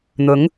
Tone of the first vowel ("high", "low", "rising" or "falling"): rising